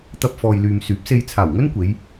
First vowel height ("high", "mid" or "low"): low